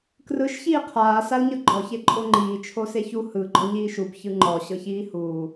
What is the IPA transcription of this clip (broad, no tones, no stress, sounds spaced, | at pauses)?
k r ɯ ʃ ç iː qʰ aː s a l ɲ ɤ ɡ͡ǃ ɔ ç e ǃʼ o ŋ͡ǃ iː t͡ʃʰ o s e ç u h ɯ ɡ͡ǃ ɔ ɲ iː ʃ u b ç ɯ ŋ͡ǃ ɔ ɕ ɤ ç iː h uː